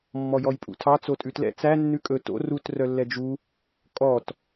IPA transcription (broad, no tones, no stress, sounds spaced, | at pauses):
mː ɔ j ɔ j pʼ ṵ tʰ ɑ t͡s o tʼ ʉ t l ɛ̰ t͡s æ nː ʉ kʼ ɵ t o̰ r u t r œ lː ɛ d͡ʒ u | kʼ ɔ t